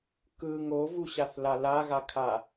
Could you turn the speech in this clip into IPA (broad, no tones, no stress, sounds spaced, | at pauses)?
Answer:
k ɯ ŋ o v u ɕ a θ l a l a ɣ a kʰ a